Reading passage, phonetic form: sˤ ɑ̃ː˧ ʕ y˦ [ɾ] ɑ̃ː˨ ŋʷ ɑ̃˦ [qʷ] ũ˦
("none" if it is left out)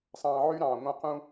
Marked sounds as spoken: ɾ, q

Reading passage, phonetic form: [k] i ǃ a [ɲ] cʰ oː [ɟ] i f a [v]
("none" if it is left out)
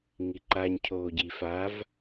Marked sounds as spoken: ŋ, ɲ, ɟ, v

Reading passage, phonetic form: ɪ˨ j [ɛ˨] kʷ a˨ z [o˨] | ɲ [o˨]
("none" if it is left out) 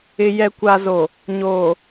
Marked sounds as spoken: ɛ˨, o˨, oː˨

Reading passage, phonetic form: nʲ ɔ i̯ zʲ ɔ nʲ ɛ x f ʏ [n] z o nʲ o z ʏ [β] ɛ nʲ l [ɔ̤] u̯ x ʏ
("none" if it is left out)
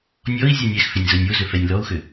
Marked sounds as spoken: nʲ, f, ɔ

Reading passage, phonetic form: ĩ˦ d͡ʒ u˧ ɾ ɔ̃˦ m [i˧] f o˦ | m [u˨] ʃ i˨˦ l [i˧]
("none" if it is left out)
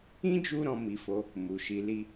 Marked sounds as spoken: i˧, u˨, i˦

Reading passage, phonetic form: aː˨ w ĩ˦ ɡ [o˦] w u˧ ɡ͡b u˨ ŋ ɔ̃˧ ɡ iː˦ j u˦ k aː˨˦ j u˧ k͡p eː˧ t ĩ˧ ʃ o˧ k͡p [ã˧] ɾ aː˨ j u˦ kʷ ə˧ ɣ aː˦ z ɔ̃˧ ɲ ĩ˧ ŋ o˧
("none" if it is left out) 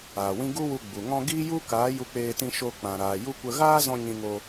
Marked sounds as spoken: u˦, ã˨

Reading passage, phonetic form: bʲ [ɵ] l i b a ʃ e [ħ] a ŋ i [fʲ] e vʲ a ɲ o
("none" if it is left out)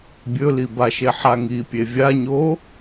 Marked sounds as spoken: ɵ, ħ, pʲ

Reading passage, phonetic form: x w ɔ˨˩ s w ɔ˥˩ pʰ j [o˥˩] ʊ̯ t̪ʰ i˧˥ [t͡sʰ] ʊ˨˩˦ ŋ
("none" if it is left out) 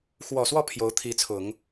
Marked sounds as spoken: o˧˥, t͡sʰ

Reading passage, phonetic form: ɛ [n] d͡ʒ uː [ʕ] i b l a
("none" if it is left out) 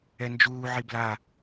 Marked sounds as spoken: n, ʕ

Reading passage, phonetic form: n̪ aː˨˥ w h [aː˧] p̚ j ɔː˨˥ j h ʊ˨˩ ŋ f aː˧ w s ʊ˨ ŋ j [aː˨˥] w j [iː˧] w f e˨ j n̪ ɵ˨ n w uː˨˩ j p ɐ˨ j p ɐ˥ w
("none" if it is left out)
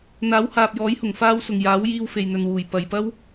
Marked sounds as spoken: aː˨, aː˨˥, iː˧

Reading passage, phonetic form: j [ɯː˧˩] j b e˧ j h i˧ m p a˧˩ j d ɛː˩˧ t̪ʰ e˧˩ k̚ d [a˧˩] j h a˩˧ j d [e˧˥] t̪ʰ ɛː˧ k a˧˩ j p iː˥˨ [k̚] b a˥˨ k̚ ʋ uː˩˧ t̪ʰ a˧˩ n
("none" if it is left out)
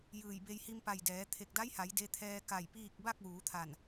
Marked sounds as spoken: ɯː˧˩, a˧˥, e˧, k̚

